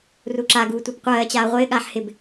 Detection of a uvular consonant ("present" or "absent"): present